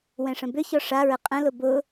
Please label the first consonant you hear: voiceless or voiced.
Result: voiced